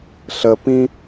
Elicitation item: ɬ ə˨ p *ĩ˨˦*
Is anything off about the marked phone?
yes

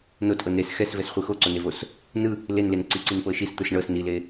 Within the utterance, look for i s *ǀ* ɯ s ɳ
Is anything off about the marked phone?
yes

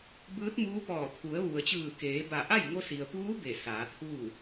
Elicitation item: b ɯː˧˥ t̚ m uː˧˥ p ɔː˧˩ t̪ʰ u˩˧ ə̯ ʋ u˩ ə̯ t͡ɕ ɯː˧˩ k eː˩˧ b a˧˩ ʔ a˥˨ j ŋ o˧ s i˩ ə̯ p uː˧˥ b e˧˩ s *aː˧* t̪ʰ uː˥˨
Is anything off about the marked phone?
yes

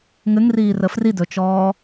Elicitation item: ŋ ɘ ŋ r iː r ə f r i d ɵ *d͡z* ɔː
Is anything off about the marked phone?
yes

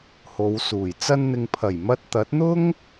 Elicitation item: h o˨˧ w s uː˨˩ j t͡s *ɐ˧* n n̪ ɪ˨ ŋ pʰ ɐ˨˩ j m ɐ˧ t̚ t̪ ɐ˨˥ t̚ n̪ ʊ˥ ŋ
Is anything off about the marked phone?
no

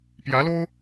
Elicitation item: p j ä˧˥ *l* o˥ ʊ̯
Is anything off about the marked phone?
no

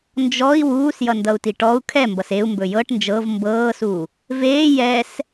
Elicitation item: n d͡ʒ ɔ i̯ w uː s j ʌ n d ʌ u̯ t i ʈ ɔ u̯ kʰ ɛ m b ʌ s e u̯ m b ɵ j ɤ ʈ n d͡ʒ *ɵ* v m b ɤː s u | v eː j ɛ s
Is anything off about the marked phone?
yes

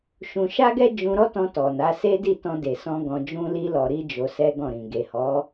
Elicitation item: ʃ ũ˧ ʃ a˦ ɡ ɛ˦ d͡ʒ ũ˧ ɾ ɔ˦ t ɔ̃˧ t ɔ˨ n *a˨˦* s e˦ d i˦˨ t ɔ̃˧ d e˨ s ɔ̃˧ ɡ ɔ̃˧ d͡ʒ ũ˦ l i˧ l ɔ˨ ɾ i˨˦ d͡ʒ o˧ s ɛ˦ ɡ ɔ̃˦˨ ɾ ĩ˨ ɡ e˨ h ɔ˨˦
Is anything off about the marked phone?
no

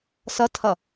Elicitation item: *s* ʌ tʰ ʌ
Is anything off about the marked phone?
no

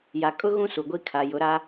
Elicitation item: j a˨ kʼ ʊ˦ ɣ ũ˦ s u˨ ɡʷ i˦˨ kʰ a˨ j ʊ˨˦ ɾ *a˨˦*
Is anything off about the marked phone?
yes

